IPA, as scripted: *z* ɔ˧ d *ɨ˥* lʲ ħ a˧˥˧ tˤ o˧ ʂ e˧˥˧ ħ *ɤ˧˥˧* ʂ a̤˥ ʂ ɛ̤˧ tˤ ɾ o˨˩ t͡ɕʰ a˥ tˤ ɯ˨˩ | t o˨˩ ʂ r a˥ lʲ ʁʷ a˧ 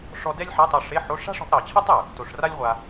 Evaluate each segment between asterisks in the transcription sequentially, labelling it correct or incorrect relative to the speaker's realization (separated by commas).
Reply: incorrect, incorrect, incorrect